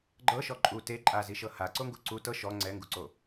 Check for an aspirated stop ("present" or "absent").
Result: absent